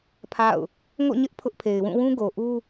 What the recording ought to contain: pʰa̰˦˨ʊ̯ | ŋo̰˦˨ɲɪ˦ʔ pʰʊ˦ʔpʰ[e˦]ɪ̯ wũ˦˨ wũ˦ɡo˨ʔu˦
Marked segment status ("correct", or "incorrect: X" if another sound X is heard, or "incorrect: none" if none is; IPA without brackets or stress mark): incorrect: e˨